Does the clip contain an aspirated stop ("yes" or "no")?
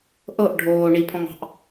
yes